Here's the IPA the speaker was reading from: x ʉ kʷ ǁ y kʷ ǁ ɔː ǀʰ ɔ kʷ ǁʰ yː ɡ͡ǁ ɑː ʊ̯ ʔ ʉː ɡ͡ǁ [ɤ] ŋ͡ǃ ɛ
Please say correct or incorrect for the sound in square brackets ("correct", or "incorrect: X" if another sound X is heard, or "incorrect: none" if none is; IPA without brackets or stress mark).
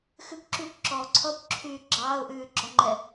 incorrect: ɔ